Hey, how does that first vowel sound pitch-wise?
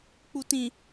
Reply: low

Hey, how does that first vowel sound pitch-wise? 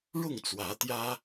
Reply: falling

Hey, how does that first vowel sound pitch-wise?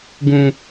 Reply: low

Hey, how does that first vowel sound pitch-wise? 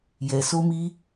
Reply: low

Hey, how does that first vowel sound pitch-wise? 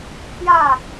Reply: falling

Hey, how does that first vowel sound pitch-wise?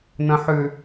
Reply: low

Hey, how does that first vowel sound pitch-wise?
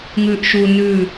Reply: low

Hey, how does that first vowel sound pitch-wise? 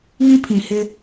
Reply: high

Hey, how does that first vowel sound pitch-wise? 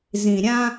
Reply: low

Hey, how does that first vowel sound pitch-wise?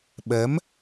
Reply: rising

